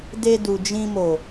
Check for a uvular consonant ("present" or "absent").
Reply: absent